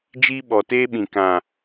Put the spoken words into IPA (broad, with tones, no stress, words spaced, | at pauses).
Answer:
d͡ʒiː˧ɓɔ˨teː˧ɓĩ˨ kã˨